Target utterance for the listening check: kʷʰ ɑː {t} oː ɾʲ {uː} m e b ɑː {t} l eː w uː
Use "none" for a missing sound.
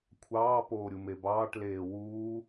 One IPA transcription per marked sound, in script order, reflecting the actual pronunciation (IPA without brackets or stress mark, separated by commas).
p, u, ʈ